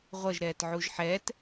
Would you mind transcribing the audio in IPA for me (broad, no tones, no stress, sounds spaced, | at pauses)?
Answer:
ʁʷ ʌ ʒ ɾ ɛː t ʕ u ʒ ħ ɛː t